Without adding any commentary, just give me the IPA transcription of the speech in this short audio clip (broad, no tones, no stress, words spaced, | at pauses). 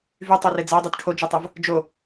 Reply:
vytˤore d͡za dˤytʈʰod͡ʒytˤav | d͡ʒo